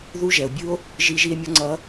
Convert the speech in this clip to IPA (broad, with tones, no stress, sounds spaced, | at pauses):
ð u˦˥ ʒ ɛ˩ o̯ bʲ ɯ˦˥ o̯ | ʒ i˦˥ ʒ i˦˥ e̯ mʲ ʌ˦˥ ŋ͡ǀ ʌ˦˥